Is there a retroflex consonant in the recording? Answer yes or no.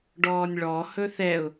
yes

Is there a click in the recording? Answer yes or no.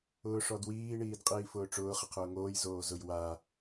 no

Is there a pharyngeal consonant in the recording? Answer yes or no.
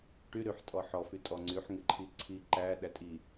yes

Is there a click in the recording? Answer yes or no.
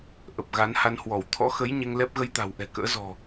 no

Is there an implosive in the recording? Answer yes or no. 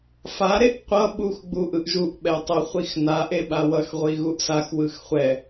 yes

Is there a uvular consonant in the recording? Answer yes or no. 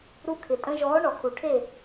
no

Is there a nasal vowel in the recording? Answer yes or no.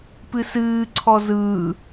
no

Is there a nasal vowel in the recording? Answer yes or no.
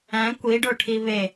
yes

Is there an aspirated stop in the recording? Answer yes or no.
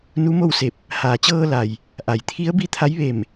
yes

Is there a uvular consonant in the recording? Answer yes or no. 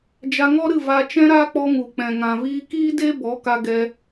no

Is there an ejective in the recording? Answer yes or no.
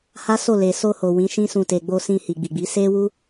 no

